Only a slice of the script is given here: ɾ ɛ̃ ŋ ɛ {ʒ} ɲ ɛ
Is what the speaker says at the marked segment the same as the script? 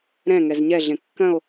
no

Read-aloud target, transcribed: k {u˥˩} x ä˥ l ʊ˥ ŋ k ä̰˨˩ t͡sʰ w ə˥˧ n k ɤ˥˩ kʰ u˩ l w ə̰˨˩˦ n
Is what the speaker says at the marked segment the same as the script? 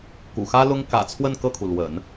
no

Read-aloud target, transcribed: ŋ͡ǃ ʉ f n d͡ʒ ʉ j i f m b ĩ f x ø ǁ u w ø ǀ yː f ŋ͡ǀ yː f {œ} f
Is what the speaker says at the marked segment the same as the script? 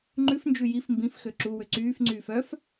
yes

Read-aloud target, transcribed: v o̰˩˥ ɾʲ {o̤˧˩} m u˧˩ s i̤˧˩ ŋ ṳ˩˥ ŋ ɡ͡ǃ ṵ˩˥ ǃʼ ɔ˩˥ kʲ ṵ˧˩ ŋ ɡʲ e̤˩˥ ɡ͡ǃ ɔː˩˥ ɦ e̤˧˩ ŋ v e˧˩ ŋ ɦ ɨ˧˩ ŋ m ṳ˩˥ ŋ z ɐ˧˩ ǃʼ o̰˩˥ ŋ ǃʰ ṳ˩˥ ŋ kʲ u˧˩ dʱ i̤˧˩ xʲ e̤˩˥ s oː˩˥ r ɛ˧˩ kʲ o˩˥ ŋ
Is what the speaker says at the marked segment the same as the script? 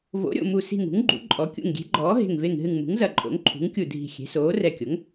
no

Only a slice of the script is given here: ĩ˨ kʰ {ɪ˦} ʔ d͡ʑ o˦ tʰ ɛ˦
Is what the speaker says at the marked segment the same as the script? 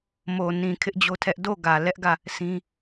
yes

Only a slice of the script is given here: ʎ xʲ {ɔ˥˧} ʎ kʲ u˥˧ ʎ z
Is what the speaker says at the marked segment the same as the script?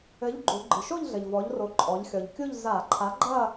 no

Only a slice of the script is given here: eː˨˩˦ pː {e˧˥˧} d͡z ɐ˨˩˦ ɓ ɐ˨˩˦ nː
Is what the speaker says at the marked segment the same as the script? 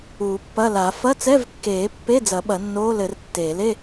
yes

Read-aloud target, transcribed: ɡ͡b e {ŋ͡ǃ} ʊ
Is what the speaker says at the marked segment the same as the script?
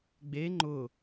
yes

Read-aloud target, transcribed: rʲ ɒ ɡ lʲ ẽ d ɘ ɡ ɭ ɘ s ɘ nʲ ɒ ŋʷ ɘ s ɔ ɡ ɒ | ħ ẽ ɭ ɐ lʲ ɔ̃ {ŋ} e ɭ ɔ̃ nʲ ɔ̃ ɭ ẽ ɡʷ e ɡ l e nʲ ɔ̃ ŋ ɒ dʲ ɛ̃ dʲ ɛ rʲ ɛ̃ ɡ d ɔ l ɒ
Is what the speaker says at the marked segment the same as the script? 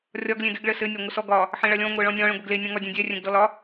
no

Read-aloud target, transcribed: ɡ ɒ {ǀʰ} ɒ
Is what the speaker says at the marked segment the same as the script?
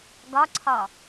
yes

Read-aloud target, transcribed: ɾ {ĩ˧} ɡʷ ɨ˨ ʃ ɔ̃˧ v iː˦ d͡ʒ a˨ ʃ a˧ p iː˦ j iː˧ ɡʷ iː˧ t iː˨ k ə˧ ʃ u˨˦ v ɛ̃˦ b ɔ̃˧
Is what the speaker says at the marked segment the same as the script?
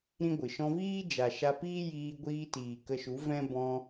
no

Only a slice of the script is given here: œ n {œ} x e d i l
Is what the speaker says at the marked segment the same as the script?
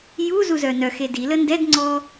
yes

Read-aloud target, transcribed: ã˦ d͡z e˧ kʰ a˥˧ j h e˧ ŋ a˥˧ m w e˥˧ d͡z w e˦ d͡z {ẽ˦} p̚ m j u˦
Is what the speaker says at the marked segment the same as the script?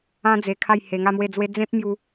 yes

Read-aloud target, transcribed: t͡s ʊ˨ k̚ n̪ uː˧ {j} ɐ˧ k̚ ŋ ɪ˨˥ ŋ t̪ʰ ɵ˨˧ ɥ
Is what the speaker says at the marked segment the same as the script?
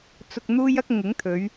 yes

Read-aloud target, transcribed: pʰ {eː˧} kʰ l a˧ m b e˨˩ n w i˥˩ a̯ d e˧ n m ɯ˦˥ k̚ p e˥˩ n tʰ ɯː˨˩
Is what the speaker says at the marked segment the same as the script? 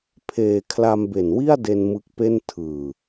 yes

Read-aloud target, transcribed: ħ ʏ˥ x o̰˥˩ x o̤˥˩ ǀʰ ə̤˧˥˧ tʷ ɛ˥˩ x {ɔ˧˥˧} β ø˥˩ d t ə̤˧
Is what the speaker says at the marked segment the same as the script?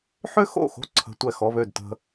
yes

